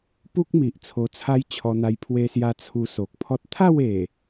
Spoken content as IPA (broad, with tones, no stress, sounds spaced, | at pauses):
p u˦ k̚ m i˨ ʔ t͡sʰ o˧ t͡sʰ a˦ j t͡ɕʰ ɔ˧ n̪ a˧ j pʰ w e˧ s j a˧ t͡sʰ u˧ s o˨ k̚ pʰ ɔ˦ t̚ t̪ʰ a˥˧ w e˨˩